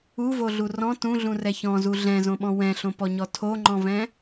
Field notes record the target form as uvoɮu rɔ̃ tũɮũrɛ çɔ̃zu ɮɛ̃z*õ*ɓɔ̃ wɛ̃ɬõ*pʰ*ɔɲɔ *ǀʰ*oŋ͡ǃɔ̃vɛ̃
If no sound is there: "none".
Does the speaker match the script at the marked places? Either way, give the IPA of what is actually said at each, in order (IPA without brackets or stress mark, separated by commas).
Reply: õ, p, tʰ